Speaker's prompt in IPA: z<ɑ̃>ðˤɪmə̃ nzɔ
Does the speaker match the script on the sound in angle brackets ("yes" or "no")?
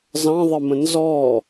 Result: yes